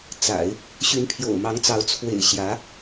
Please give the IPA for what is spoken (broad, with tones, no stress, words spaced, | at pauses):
t͡sa̰˨˩˦ɪ̯ | ɕy˧˥npʰjo̰˨˩ʊ̯mɑ˧˥ŋt͡sɑ˧˥ʊ̯ t͡sʰwḛ˨˩ɪ̯ ɕjä˧˥